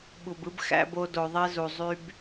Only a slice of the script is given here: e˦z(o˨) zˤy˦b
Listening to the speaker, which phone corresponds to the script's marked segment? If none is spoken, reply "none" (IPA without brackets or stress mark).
u˨